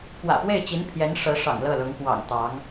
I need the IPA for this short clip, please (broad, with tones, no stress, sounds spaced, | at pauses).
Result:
p w ä̰˨˩ p w e˥˩ ɪ̯ t͡ɕ i˧˥ n pʰ j ɛ˧˥ n ʂ ɤ˧˥ ʂ ɑ̰˨˩ ŋ l ɤ˥˩ l ʊ˧˥ ŋ k w ɑ̰˨˩ ŋ t̪ ɑ˧˥ ŋ